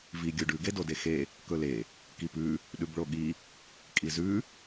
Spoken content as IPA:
v i ɡʲ u ɖ ʉ ɡ e d o d e x e | k ɵ l e | k i p ʉ | ɗ ʉ b ɭ o ɠ i | kʼ i z ʉ

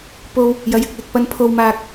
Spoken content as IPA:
p o˧ w | j ɐ˨˧ j ɪ˨ k̚ l ɪ˨ k̚ p ɐ˧ n pʰ o˧ w m aː˧ k̚

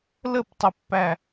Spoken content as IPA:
l ə p tˤ ʏ pː æ

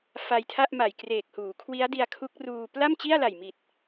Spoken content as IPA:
f a˧ j tʰ a˥˩ ʔ m a˨˩ j k r eː˨˩ k̚ h uː˩˦ kʰ w i˦˥ a̯ d i˧ a̯ kʰ u˦˥ k̚ r uː˧ p l a˥˩ m t͡ɕ i˥˩ a̯ l a˨˩ j m i˨˩ t̚

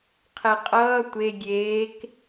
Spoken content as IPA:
qʰ ɛ qʼ ʌː tʷ e ɡʲ eː k

